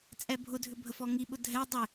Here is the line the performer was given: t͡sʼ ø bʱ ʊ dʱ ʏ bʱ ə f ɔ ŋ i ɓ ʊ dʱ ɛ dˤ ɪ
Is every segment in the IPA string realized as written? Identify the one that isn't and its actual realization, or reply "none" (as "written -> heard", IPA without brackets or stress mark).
ø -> ɛ